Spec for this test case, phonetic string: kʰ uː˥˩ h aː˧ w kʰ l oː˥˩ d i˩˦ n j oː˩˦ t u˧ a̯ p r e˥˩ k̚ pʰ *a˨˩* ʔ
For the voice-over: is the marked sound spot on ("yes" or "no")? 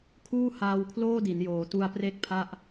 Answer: no